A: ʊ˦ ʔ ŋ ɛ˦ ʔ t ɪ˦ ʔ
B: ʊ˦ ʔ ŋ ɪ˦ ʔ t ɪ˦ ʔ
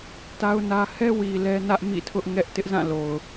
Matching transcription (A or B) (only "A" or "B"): A